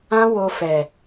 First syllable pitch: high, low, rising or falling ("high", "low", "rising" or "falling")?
high